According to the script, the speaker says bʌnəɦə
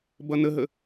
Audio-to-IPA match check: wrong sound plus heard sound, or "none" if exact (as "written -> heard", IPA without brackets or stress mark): none